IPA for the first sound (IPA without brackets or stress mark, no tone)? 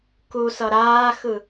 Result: k